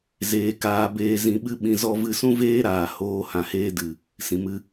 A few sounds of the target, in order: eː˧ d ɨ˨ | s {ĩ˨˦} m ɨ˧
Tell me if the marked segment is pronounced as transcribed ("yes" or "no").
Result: no